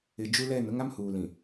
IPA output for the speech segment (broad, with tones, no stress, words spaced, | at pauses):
ɪ˨ d͡ʒu˦lɛ˦˨n ʊ˦ŋa˦mhuː˨lĩ˨